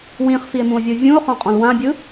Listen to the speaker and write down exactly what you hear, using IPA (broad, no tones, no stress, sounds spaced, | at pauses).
w ĩ χ f i e̯ m ũ o̯ vʲ ɯ vʲ ũ o̯ χ ɔ̃ qʼ ɔ̃ l w ã bʲ ɯ